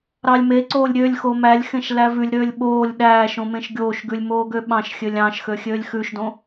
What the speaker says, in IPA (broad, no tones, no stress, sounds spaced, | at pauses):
ɾ ɑ lʲ m e ǀ oː lʲ ɾʲ ø lʲ x o m æ lʲ x ẽ ʃ l æ v ʉ lʲ ɾ øː lʲ ɓ oː lʲ ɗ æː ʃ õ m ẽ ʃ ɡʲ oː ʃ ɡ ʉ lʲ m oː ɡ ø ɓ ɑ̃ ʃ xʲ ø lʲ ɑ̃ ʃ x ø xʲ øː lʲ x ʉ ʃ d õ